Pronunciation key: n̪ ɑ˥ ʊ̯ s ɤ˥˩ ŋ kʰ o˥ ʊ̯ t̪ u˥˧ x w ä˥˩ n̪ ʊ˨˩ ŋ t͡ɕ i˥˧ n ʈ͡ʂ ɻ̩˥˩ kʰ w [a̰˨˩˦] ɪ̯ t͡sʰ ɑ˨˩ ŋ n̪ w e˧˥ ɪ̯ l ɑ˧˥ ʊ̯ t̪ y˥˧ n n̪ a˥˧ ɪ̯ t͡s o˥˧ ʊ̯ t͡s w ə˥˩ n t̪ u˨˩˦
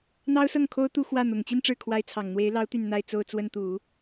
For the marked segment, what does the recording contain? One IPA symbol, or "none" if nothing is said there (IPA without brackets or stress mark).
a˧˥